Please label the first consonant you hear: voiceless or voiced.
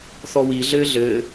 voiceless